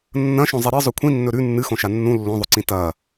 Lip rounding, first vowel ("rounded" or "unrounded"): unrounded